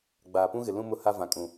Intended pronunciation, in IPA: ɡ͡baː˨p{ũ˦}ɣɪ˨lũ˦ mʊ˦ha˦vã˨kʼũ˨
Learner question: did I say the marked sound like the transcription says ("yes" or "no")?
yes